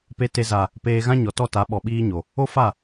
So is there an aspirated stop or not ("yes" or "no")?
no